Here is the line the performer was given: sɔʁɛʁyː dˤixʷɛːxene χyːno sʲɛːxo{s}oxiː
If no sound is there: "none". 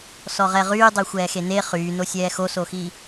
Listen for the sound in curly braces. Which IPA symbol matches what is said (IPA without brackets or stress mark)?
s